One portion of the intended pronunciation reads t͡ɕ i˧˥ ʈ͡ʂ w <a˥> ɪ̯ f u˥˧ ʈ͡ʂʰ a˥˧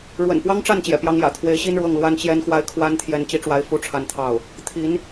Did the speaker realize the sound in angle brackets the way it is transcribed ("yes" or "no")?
no